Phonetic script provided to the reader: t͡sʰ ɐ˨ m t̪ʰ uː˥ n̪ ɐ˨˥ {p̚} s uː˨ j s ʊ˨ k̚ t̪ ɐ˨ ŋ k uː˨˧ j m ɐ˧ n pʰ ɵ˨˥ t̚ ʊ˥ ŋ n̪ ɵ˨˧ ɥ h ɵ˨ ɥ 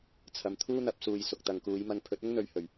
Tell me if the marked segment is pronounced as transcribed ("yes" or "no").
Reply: yes